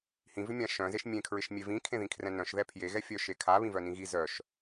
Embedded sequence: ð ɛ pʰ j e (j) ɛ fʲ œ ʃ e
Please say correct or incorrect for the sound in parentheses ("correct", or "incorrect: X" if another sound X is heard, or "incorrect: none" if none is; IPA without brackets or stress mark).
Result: incorrect: ɣ